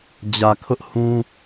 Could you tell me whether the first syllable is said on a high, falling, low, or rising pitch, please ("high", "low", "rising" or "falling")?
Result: low